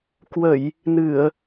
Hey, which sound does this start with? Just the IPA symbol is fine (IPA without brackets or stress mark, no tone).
k